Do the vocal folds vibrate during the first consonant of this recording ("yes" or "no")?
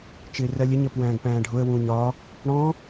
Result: no